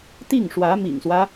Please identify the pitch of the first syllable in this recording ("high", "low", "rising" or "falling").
falling